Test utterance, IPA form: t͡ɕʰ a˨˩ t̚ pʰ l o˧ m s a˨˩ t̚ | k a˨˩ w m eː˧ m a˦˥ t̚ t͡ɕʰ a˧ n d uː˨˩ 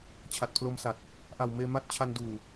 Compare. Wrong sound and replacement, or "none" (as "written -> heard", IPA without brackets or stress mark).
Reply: k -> ʔ